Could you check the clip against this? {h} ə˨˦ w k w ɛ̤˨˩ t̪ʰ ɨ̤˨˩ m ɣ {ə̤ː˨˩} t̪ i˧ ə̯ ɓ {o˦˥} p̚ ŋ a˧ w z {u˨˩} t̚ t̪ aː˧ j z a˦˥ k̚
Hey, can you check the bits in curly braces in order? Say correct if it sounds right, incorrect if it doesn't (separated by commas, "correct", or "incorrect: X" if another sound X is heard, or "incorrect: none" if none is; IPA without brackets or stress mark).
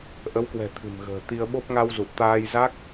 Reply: incorrect: ʔ, correct, correct, correct